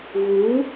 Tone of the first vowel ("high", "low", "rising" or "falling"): rising